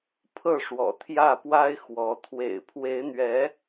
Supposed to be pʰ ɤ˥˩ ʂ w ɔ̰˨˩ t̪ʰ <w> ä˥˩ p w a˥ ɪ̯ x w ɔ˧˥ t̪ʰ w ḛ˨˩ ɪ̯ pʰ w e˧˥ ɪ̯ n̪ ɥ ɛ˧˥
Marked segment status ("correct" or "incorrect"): incorrect